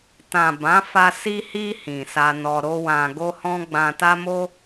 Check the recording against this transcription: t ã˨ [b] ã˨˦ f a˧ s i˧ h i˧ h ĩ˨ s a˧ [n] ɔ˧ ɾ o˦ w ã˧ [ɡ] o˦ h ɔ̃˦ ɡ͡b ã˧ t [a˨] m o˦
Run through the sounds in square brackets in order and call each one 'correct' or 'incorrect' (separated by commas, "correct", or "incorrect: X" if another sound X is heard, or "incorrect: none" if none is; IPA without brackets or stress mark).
correct, correct, correct, incorrect: a˦